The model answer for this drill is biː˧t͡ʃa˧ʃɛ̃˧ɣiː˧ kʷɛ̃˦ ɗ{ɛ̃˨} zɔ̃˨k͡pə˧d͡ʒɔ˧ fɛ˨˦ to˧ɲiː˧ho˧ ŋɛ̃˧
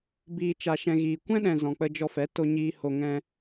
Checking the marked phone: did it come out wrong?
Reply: no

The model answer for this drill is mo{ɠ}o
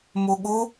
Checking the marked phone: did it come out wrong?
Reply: no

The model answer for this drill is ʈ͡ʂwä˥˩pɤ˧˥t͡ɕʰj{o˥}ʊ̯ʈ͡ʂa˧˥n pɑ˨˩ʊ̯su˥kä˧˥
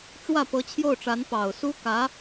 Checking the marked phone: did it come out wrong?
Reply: yes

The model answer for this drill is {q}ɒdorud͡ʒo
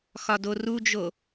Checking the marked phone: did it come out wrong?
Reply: yes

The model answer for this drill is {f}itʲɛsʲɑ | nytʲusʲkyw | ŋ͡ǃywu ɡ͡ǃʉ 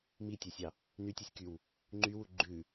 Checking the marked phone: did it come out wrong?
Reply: yes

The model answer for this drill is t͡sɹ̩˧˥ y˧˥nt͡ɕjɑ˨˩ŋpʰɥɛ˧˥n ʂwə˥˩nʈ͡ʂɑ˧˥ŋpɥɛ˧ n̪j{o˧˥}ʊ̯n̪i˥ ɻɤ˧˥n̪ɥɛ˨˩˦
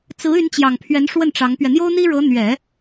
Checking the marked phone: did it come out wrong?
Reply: yes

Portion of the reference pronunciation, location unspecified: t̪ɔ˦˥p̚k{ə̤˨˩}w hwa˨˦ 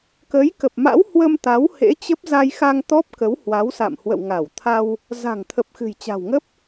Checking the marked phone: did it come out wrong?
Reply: yes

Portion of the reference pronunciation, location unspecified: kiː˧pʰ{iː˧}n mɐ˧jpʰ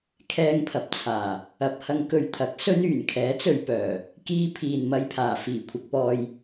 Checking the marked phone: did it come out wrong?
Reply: yes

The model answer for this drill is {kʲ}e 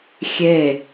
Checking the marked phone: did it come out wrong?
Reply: yes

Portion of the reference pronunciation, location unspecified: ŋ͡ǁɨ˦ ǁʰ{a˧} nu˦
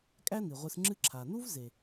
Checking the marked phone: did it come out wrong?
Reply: yes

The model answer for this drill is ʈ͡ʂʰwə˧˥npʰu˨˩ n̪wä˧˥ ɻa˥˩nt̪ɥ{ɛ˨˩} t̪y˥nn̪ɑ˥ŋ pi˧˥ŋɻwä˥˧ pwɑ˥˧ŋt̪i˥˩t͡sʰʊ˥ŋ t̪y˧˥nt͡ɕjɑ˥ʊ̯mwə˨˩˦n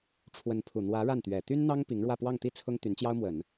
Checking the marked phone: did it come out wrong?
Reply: no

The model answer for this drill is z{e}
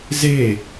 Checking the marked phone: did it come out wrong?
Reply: no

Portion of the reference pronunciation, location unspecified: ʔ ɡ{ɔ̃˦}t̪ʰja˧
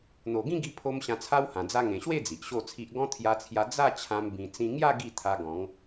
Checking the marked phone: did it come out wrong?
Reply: no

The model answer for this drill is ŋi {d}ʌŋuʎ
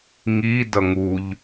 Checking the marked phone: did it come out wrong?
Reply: no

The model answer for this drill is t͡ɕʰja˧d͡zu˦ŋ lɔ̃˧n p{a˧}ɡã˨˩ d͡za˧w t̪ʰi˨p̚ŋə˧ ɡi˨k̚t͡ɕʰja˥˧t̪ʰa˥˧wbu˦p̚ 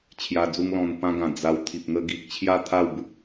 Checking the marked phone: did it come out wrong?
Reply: yes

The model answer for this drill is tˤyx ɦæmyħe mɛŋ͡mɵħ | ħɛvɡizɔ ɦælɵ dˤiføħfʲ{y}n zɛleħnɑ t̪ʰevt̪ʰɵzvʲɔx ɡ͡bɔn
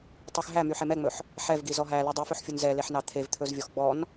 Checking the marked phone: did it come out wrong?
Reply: yes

